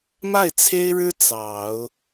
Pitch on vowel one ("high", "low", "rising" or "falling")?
falling